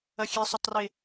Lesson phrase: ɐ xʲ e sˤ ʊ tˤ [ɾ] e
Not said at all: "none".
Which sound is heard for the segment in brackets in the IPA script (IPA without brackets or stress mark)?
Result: r